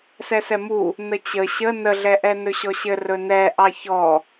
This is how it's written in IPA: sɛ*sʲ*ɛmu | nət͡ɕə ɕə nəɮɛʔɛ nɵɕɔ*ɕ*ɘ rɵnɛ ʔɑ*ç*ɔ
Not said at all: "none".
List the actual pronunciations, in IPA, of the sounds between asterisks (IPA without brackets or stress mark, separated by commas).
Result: s, ɕ, ç